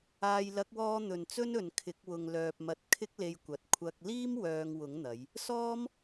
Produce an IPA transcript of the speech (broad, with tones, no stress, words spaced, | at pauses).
aː˨jlɐ˨˥k̚wɔː˧ n̪ɵ˨nt͡sɵ˥nɵ˨n kʰɪ˨˥k̚wʊ˨ŋ lœː˨p̚mɐ˨˥t̚ kʰɪ˥k̚le˧j kʷɐ˨t̚ kʷʰɐ˧k̚ liː˥m wœː˧ŋwʊ˨˥ŋn̪ɐ˨˧j | sɔː˥m